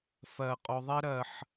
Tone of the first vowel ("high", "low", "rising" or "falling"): low